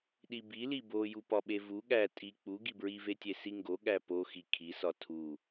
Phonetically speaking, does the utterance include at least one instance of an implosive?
yes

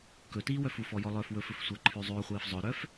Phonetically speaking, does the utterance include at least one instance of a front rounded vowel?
yes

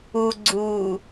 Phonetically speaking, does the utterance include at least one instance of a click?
yes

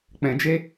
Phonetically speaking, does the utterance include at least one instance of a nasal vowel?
yes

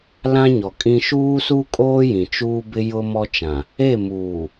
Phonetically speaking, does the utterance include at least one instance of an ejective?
yes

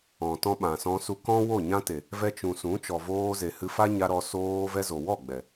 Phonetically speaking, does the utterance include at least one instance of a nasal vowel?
yes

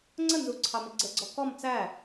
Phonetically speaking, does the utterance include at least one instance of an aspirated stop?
yes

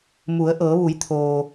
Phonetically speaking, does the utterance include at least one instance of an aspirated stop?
yes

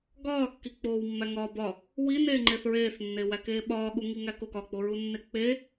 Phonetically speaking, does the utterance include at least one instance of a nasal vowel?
no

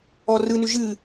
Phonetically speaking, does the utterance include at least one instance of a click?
no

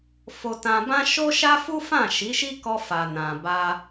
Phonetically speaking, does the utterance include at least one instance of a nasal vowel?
yes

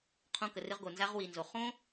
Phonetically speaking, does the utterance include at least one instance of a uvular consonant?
yes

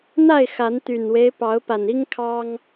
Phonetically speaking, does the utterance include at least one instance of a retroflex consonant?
no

